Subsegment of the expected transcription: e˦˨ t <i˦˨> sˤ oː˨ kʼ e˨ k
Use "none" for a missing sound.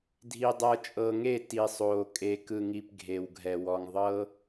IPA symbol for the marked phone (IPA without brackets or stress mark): i˨